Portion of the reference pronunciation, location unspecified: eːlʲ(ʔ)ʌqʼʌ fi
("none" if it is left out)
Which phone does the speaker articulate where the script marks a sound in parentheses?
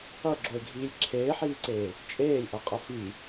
ʔ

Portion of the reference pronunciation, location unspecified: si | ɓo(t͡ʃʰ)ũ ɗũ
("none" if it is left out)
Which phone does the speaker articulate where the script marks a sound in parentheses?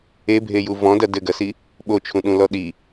t͡ʃʰ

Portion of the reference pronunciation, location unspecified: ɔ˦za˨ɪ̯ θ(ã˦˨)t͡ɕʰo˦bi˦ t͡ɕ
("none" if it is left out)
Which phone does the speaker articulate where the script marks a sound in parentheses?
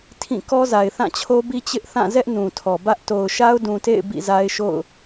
ã˦˨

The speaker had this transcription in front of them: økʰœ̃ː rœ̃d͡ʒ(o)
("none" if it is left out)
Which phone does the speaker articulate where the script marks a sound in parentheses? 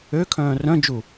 u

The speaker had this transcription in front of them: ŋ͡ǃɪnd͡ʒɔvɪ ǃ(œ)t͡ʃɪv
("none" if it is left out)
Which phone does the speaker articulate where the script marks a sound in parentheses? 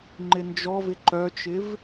œ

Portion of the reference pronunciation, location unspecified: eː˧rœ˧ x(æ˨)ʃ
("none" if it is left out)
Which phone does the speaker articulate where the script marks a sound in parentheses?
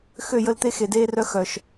œ˨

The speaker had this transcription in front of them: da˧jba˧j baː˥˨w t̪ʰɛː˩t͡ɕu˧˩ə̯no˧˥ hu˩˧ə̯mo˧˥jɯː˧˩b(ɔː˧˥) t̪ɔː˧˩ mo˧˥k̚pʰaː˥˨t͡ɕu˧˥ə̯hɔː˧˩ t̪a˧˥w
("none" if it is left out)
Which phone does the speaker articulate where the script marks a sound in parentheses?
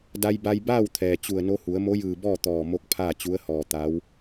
ɔː˥˨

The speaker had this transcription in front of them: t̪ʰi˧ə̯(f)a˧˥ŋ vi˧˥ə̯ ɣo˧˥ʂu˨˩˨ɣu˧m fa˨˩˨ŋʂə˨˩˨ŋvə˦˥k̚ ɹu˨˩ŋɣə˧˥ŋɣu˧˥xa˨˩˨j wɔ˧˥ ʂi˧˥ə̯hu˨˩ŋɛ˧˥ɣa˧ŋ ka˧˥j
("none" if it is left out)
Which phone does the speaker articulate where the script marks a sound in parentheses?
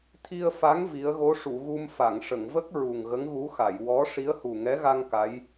f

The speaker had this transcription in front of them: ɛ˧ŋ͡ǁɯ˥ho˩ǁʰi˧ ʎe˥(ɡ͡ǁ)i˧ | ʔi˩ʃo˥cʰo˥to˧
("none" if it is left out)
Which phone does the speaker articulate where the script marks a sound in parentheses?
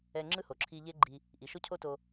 ɡ͡ǃ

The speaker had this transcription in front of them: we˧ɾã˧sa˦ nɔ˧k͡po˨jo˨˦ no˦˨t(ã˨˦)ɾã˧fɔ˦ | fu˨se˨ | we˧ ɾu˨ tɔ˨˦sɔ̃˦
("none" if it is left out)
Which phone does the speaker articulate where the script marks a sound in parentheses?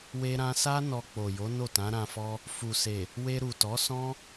ã˨˦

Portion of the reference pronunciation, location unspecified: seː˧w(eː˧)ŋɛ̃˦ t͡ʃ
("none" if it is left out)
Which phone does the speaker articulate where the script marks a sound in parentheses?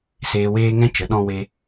eː˦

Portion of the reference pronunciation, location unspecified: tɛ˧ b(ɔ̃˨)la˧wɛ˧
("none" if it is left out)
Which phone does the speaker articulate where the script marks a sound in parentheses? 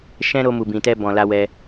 ɔ̃˨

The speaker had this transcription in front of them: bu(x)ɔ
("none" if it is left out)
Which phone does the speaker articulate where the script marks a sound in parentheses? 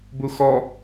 x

